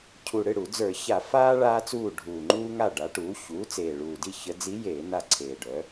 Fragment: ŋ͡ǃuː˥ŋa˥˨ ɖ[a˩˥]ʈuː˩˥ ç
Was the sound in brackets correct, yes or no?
yes